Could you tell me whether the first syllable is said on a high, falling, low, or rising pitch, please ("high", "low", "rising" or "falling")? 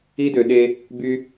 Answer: high